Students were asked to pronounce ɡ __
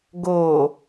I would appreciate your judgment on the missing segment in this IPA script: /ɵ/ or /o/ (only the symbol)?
o